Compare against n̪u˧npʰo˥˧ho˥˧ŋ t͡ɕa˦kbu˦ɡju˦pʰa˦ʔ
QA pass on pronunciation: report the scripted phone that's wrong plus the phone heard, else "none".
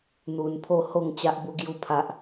k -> ʔ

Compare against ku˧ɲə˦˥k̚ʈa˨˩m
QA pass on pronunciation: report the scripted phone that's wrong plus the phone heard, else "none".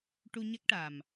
k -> ʈ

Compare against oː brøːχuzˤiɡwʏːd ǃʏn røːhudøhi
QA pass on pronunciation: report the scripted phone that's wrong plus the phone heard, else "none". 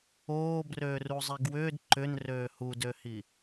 χ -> r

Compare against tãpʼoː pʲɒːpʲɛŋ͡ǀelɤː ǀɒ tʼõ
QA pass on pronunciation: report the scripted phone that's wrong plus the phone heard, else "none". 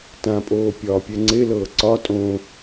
none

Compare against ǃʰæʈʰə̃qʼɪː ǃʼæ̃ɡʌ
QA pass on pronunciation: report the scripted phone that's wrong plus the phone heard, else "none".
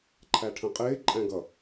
none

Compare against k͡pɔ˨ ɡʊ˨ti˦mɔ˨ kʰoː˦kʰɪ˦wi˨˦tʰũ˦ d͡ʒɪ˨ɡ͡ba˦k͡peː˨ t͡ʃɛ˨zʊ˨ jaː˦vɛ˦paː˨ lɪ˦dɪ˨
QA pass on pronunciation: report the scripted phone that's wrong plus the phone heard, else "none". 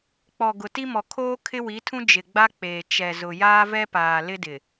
none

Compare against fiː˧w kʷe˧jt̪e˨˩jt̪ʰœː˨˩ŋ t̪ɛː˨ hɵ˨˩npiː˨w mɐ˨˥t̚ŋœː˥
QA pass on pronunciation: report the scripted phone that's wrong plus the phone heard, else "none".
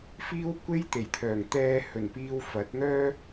m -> f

